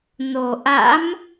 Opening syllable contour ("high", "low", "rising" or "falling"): low